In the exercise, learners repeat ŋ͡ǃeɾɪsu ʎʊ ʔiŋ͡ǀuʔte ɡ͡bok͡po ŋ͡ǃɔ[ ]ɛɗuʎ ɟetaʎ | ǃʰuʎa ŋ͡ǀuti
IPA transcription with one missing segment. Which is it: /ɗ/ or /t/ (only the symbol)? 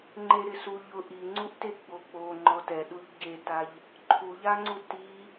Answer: t